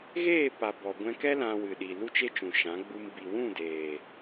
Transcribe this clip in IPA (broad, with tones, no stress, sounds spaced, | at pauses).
ɣ eː˦˨ p a˨ b ɔ˨ ɡʷ ɛ̃˧ k ɛ˦ l ã˧ w ɨ˨ ɗ i˨ l u˦ t͡ʃ e˦ t͡ʃ ũ˨ ʃ ã˨˦ ɡ͡b u˧ m b i˨ w ũ˦˨ d eː˨